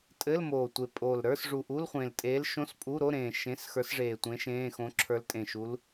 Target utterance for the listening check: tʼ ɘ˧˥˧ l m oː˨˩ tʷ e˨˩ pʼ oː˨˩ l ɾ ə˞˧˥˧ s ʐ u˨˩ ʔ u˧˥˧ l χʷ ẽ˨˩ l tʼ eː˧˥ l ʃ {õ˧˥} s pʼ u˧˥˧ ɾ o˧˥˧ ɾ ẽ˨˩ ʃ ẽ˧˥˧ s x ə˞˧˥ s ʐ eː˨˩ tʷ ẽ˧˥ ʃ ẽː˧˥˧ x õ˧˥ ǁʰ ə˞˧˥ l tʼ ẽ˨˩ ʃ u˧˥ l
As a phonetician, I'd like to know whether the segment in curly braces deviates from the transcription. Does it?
yes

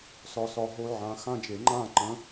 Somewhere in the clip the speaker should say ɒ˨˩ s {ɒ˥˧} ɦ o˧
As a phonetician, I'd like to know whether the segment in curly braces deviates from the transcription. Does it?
yes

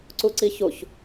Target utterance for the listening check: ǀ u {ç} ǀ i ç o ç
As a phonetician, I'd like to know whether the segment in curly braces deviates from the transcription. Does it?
yes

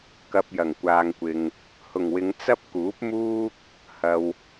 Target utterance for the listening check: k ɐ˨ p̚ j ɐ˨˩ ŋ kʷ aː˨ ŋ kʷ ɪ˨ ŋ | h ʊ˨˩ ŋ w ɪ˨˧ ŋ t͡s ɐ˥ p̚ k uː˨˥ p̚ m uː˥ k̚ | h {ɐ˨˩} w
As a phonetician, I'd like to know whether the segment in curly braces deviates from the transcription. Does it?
yes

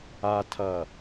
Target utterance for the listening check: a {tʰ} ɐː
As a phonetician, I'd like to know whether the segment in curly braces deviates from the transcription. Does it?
no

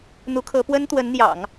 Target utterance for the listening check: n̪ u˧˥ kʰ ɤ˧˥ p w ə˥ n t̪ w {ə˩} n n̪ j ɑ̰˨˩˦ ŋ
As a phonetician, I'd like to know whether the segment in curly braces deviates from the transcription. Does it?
yes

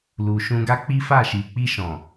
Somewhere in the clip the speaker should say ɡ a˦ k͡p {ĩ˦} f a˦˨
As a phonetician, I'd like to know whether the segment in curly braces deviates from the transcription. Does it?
yes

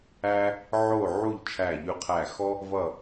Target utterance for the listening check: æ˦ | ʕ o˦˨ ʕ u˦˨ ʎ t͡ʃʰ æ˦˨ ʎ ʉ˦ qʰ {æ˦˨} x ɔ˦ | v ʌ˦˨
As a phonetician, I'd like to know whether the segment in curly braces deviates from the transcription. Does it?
no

